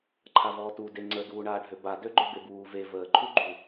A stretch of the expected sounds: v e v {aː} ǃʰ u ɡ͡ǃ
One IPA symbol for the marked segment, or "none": əː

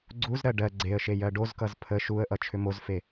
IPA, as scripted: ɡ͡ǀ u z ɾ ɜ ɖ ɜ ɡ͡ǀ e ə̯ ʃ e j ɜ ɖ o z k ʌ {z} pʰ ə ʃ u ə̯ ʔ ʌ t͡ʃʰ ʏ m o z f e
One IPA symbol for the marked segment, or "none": z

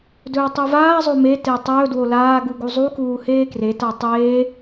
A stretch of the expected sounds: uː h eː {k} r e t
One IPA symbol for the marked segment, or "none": k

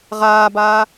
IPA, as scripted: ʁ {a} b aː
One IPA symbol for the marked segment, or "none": aː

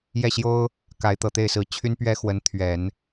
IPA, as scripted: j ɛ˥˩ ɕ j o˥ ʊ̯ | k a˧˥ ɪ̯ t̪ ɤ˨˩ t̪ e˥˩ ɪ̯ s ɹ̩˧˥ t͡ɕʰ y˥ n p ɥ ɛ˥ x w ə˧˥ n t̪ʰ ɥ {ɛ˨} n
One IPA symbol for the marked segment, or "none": ɛ˨˩˦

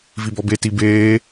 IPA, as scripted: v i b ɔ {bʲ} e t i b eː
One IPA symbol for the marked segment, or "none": b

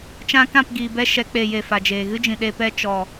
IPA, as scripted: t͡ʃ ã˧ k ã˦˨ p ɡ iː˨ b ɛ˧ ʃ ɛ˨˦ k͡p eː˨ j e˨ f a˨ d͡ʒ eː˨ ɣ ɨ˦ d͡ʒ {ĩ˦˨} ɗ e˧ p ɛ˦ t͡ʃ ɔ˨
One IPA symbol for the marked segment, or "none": ĩ˨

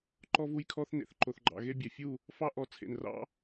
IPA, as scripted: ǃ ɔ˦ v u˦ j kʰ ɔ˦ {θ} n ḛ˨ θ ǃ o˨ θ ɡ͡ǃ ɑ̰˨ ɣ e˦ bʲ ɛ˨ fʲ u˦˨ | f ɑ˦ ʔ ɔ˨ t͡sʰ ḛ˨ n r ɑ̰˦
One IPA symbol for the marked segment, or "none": θ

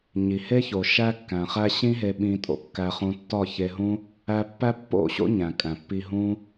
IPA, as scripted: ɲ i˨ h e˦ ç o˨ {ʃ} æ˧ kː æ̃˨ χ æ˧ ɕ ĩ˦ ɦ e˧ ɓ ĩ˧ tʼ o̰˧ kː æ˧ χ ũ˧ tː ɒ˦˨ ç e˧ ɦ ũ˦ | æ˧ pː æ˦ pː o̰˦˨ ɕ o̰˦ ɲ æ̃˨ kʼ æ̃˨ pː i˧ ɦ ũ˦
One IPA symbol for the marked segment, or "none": ʃ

